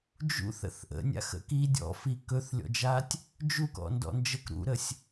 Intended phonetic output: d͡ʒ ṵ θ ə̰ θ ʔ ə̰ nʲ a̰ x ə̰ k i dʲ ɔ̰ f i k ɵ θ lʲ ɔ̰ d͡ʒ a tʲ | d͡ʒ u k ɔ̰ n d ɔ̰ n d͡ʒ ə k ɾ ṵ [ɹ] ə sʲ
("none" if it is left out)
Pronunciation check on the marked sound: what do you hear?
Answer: ɾ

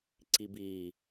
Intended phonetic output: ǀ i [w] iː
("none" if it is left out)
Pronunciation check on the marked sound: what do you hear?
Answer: b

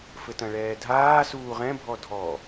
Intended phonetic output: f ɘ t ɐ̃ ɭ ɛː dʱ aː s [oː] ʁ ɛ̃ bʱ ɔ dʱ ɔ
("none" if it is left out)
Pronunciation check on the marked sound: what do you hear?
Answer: uː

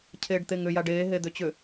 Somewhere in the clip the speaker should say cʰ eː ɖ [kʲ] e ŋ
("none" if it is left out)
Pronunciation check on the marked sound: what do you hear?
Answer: t̪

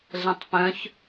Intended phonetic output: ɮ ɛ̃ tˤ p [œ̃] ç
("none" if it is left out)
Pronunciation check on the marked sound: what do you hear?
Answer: œ̃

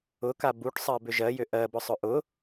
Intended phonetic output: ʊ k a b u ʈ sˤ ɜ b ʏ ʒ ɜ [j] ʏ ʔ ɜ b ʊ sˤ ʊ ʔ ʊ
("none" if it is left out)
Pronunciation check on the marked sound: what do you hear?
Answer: j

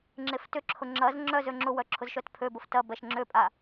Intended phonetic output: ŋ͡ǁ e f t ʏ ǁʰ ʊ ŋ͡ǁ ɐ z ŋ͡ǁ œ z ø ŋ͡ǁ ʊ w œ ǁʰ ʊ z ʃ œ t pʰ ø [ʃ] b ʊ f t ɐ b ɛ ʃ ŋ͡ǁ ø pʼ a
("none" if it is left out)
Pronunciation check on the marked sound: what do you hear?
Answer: none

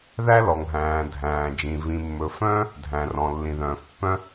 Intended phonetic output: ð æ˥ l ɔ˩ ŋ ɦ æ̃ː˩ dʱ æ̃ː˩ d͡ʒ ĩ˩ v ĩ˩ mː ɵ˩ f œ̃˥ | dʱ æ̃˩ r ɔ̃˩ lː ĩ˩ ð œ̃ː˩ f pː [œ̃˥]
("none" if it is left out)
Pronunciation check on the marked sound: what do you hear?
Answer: œ̃˥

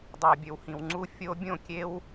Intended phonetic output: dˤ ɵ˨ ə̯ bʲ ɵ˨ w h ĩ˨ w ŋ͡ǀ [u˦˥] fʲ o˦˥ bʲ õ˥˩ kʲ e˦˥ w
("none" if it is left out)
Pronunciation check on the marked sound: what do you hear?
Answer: u˦˥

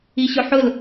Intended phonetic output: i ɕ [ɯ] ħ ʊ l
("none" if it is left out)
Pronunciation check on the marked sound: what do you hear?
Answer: ʊ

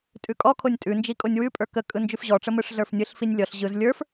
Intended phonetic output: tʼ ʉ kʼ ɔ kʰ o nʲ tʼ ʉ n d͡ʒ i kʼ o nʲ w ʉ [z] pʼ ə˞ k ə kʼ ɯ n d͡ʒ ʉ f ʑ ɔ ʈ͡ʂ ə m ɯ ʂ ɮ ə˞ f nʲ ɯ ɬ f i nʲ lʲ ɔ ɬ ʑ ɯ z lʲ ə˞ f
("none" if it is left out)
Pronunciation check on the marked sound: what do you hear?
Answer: none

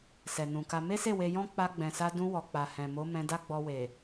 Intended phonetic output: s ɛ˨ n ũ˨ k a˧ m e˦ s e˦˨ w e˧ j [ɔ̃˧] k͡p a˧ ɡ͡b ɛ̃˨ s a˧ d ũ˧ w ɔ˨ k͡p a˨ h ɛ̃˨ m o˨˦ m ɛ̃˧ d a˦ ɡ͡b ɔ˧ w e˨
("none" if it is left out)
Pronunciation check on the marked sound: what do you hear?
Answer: ɔ̃˦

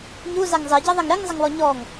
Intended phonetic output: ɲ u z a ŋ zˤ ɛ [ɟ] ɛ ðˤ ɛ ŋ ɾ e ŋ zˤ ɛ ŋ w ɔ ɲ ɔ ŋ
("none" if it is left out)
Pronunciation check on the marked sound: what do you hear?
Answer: ɟ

